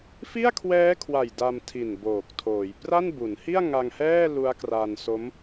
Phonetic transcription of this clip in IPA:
fi˥˩a̯kʰwɛː˦˥kʰwa˨˩j da˧mtʰi˨˩n boː˨˩k̚tʰoː˩˦j pra˥˩n bu˩˦nhi˥˩a̯ ŋa˧ŋhɛː˥˩ lu˦˥a̯kra˧nso˦˥m

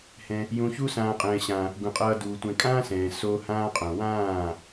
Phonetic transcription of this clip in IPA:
hɛ̃˧ | jũ˧ çu˦ sãː˨qʼɛ̃ː˨ɕã˨ | ɡũ˨qʼʌː˧duː˨ tʷɛ̃˨kʼãː˦ sɛ̃ː˨ so˧ hãː˦qʼõ˨ wãː˦˨

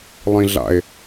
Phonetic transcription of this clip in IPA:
lˠĩɮa̰e̯

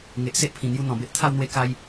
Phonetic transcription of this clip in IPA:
ŋe˨ʔ se˦ʔpʰĩ˨˩ n̪ju˧ n̪ɔ̃˨˩be˦ʔt̪ʰa˥˧wn̪we˦ ka˦j

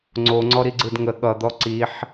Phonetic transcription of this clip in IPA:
ŋ͡ǀoŋ͡ǀɔ ɾiɡ͡ǀɯdŋə ɠʌd̪ɔ ǀiħ

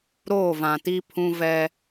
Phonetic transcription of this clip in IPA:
ɾoː˦˨vã˨ti˦ pʰũ˦vɛ˦

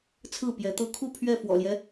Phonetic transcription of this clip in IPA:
t͡sʰɹ̩˥˨ pjɛ˨˦t̪ɤ˦ kʰu˥˨ pʰɥɛ˥˨ fwɔ̰˨˩ljɛ˦

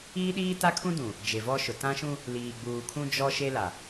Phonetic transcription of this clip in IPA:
iː˦ɗiː˦ ta˦kʰũ˦dũ˨ | d͡ʒe˨vɔ˦ʃʊ˨ tã˦ʃũ˦ | liː˨ɡ͡buː˨kʰũ˦ d͡ʒɔ˦ʃe˦la˨

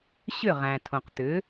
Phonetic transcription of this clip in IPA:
ɕʏ˥˩ʁæ̃˩tʰõ˩qt̪ʏ˩˥

